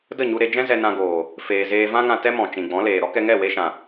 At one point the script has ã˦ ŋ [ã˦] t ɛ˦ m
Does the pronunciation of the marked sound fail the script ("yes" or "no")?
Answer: yes